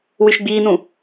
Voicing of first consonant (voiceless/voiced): voiced